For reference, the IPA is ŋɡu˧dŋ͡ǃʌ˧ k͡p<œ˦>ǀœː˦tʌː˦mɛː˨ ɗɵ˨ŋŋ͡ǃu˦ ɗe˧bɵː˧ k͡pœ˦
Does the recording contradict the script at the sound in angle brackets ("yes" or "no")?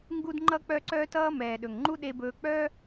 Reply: no